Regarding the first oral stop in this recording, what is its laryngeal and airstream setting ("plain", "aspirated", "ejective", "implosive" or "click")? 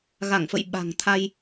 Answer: implosive